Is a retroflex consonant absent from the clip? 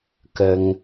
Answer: yes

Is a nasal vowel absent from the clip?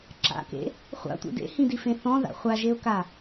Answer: no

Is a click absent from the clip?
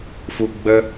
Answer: yes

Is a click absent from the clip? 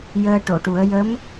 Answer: yes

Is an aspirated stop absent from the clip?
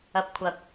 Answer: no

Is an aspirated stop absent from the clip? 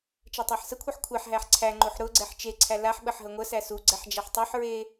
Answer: no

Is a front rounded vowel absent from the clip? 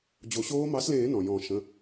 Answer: yes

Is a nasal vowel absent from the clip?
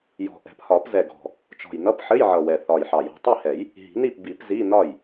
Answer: yes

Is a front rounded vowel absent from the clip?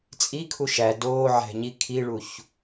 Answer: yes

